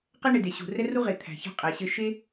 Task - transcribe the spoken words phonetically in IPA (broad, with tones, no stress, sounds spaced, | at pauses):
q ɛ˥ ɳ e˩ d e˩ ɕ ṳ˩ r ɛ˥ r u˥ ʁ e˩ t̪ʰ æ̤˩ ç ɑ̤˧ qʼ æ˩ ɕ ɘ˧ ʃ e˥